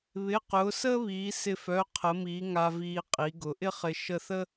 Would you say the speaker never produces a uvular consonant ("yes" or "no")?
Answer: no